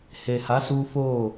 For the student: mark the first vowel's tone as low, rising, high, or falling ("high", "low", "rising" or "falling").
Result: low